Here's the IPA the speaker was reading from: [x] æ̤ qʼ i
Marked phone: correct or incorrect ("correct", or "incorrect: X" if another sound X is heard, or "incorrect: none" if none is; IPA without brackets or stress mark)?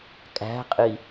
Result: incorrect: kʼ